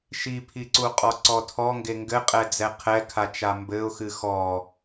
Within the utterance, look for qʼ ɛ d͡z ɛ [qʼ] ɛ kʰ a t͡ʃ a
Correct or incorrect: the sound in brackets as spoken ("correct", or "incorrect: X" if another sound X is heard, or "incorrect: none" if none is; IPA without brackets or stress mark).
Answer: incorrect: qʰ